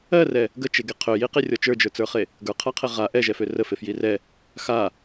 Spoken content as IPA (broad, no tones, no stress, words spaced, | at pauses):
ɜrɛ | ɡət͡ʃeɡe qʰøjiqirʲɔ t͡ʃə˞d͡ʒə˞t͡sə˞χe | ɡə˞qʰaqʰe ʁa ʔɛʒɛfø rəfefji rɛ | xa